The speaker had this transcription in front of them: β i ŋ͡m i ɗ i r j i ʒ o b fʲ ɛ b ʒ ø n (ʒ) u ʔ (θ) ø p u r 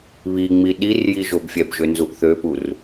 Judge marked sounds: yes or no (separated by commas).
no, yes